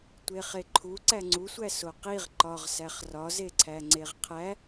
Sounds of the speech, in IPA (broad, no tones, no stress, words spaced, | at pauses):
tʷeχeǃʰu ǀæŋ͡ǀusʷæ soqiʁ ǃɒʁsæχ rɒzeǀʰæ ŋ͡ǀeʁqʰæ